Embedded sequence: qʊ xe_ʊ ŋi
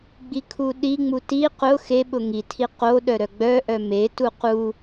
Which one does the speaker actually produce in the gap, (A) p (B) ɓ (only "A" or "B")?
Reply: B